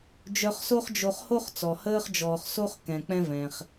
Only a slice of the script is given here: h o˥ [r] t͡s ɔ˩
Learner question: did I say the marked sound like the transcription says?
no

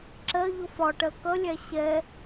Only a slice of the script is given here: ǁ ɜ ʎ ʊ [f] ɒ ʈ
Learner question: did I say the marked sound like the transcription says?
yes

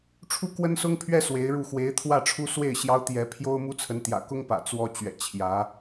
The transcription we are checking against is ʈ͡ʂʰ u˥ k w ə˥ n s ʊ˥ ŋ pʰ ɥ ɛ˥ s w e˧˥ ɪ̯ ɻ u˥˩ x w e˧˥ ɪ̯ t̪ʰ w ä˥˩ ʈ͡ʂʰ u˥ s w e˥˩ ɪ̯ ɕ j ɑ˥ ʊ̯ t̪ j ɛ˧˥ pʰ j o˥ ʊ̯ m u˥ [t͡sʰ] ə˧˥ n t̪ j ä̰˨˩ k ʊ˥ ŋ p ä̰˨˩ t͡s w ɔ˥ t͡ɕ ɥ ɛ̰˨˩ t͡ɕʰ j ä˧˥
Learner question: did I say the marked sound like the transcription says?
yes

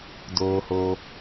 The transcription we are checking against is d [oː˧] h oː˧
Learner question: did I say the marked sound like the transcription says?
yes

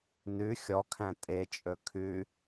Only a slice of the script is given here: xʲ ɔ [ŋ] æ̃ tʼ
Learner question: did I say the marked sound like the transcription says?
no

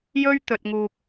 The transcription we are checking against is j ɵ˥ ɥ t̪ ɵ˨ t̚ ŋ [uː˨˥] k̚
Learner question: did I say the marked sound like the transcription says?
no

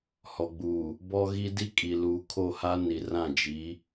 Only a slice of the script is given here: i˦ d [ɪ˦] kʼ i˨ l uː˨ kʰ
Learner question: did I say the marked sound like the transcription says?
no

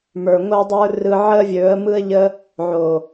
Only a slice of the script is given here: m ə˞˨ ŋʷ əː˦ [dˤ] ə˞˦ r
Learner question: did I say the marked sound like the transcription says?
yes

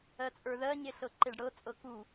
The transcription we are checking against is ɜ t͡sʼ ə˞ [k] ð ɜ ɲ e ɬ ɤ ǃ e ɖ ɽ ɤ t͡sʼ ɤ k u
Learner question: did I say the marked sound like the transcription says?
no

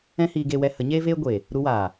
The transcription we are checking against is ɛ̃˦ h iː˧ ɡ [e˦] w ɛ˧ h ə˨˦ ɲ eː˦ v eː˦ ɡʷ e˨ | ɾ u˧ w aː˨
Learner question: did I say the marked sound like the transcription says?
no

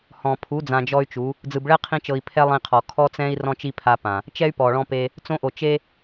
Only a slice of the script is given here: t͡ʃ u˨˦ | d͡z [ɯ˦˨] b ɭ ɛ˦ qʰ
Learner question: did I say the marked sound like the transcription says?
no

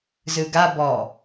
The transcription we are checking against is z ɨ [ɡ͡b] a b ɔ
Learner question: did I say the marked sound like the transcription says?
no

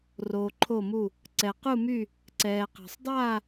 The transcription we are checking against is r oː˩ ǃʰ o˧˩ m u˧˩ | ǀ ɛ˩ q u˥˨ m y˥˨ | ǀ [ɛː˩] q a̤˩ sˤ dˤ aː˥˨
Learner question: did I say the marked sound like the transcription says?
yes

